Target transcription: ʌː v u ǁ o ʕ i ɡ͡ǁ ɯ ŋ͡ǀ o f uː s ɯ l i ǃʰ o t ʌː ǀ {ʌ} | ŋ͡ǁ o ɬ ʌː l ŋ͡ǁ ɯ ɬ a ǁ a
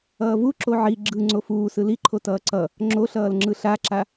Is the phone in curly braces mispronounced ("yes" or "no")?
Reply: no